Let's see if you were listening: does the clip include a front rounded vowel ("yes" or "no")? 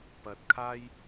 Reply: no